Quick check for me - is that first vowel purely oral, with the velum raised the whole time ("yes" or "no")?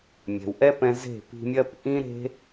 yes